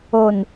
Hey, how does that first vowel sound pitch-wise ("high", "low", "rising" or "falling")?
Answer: low